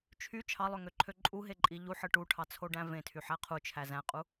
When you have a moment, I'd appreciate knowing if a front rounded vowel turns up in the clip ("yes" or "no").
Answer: yes